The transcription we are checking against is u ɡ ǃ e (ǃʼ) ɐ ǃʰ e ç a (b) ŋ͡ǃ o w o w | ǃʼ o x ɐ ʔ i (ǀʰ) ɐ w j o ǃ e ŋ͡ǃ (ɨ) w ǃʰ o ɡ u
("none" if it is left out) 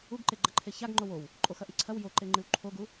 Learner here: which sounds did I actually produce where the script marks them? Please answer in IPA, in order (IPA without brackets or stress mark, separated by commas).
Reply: ɡ͡ǃ, ɡ, ǀʰ, ɨ